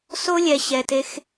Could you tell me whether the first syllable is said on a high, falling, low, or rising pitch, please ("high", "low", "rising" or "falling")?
high